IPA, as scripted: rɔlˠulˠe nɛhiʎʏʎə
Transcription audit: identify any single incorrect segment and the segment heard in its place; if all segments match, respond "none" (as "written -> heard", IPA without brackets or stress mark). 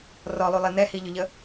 none